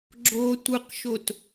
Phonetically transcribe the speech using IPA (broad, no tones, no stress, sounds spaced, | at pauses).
ɡ͡ǁ o tʷ ɯ q ʃ o t